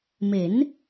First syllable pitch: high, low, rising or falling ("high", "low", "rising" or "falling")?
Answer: rising